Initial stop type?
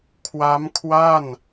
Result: aspirated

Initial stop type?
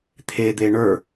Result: aspirated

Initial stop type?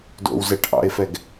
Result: plain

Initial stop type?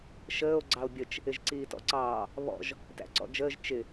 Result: click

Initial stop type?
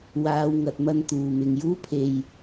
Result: plain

